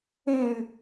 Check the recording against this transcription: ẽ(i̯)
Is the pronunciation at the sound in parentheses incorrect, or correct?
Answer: incorrect